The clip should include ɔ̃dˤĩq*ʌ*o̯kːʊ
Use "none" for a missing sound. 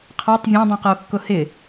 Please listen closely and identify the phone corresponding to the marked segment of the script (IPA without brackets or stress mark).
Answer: ʌ